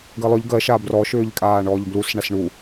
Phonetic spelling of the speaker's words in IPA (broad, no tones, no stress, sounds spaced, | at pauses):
ɡ ɜ lˠ ʏ ʎ ɡ ɜ ʃ a b r ɔ ʃ ʏː ʎ kʼ aː ɳ ɔː ʎ b l u s ɳ a s ɳ u